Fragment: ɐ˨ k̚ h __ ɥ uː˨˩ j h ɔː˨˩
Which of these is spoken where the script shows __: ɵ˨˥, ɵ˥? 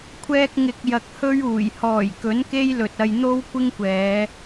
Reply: ɵ˥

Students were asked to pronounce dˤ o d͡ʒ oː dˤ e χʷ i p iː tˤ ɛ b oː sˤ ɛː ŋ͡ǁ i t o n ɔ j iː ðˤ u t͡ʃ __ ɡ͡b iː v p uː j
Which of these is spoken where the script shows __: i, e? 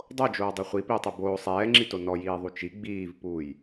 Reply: i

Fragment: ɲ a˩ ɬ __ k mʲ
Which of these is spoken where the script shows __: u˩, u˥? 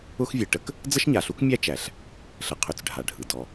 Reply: u˥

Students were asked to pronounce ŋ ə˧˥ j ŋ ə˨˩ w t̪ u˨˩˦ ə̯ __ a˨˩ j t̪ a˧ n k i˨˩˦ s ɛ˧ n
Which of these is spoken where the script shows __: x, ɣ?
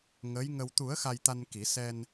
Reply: x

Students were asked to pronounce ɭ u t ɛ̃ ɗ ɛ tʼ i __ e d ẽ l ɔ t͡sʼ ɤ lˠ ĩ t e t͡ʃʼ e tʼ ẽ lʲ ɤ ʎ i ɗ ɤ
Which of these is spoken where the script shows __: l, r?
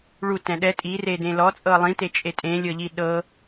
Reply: r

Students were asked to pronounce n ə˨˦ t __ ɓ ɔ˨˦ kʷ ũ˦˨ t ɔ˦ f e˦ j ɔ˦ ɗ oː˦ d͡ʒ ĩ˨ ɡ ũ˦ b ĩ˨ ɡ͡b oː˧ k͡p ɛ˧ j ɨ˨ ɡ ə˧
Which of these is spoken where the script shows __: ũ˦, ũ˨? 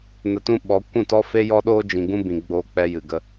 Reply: ũ˦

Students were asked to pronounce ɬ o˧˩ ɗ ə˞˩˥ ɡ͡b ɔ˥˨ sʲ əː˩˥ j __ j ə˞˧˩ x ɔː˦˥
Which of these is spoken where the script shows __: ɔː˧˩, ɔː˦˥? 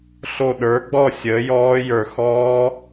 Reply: ɔː˦˥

